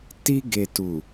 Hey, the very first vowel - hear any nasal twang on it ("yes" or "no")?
no